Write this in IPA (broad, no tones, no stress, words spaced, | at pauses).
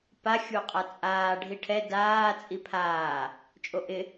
pa xʲuqʼat͡sʼaː ɖʱiʈʰɛ daː t͡sʼipʰaː | t͡ʃʼoʔɪ